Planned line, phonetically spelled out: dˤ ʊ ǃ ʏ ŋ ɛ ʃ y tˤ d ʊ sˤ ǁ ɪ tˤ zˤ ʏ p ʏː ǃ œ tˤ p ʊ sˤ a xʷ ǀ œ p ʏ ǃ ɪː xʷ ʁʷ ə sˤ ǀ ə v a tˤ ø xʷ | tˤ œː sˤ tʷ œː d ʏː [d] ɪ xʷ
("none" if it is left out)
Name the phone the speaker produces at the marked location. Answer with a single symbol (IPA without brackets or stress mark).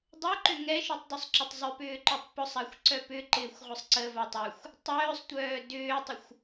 tˤ